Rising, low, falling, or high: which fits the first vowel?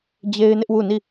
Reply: high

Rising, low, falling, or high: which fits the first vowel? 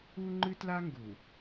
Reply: high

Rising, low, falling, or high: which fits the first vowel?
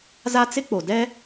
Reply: high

